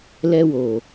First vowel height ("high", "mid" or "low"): mid